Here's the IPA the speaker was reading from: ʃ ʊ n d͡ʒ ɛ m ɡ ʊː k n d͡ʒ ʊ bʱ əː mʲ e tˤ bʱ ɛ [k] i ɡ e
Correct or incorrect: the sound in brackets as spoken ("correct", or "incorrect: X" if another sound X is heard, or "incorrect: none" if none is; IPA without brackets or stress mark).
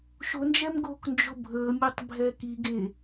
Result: correct